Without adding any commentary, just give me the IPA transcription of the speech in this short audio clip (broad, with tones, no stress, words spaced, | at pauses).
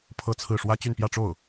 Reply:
pʰɤ˥˧t͡sʰɹ̩˥˩ ʂwä˥t͡ɕy˥˧npjä˥˧ʈ͡ʂo˥˩ʊ̯